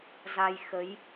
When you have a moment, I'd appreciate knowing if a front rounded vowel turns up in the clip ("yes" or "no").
no